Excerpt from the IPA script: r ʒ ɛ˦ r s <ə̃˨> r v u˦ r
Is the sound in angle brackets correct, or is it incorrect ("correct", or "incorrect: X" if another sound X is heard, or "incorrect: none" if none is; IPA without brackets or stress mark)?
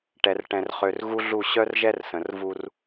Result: correct